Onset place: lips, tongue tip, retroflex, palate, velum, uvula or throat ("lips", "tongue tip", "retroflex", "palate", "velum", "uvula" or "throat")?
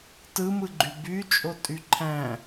tongue tip